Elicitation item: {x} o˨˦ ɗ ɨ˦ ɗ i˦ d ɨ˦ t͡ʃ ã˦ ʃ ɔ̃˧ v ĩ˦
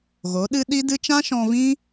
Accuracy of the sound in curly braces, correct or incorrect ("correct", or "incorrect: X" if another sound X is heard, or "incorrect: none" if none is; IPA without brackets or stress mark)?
incorrect: ɣ